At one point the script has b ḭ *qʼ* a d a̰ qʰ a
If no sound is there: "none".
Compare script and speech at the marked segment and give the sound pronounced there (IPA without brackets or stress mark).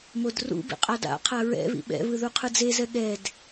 qʼ